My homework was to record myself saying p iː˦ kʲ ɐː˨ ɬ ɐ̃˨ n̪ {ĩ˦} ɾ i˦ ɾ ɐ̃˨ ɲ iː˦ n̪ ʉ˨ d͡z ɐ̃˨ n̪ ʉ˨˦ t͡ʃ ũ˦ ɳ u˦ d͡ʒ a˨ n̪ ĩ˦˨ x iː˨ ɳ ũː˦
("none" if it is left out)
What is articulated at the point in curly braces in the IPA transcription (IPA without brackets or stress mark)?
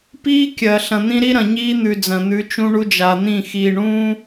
ĩ˦